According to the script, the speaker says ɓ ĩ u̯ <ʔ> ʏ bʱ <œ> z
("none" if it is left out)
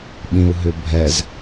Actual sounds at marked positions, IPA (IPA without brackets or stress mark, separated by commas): ɦ, ɛ